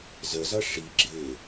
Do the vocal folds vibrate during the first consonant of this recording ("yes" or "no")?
yes